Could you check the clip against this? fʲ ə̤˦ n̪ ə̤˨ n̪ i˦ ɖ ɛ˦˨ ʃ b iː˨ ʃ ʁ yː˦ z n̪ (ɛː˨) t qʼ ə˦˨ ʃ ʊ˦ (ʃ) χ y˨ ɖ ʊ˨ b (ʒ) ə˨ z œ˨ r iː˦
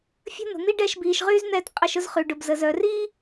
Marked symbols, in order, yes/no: no, no, no

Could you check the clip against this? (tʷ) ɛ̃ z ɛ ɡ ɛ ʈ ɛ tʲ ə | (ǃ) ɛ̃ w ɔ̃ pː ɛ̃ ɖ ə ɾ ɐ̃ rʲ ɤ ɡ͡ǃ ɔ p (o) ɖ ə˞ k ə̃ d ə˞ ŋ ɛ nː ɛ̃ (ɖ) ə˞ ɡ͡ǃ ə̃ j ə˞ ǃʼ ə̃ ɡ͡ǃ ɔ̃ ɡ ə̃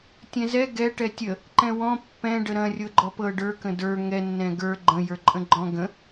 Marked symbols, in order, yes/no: no, yes, no, no

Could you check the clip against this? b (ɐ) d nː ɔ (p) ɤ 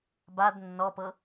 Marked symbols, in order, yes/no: no, yes

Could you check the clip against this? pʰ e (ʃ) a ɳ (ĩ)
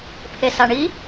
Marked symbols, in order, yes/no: no, no

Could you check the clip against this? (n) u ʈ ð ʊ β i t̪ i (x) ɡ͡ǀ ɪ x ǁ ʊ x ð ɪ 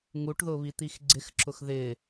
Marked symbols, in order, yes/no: no, yes

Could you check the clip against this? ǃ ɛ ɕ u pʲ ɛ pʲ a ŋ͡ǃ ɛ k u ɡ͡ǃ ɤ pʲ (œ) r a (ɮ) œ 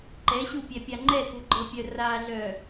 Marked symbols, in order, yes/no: yes, yes

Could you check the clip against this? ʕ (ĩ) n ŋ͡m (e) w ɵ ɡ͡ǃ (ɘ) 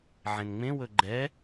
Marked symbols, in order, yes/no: no, no, no

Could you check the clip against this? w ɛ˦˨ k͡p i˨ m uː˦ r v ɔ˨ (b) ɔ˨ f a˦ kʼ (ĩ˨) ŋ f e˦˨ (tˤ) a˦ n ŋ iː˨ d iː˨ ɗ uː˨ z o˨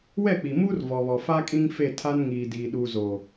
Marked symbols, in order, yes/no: no, no, no

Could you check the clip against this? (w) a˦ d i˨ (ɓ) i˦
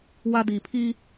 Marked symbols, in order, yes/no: yes, no

